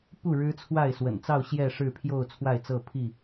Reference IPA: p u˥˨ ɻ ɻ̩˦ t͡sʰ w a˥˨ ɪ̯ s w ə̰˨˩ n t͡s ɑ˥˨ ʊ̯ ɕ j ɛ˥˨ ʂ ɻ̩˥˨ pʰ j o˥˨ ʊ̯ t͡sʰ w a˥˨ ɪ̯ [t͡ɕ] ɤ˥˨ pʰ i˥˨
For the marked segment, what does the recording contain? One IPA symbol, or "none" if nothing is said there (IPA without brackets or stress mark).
t͡s